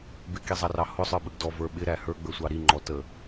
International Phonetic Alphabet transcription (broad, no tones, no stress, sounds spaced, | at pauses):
b ɪ k i zˤ ɑ r ɑ h ʊ sˤ ə˞ ɓ ə ɡ d ɔ v ə˞ ɓ ɪ ɾ æ h ə˞ ɡ͡b ə˞ sʷ ɑ ɾ i ŋ͡ǃ ɔ t ə